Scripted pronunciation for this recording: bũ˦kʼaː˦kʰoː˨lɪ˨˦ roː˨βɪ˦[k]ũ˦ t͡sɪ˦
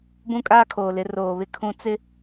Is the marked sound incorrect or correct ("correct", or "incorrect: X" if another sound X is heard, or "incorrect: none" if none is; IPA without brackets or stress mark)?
incorrect: kʰ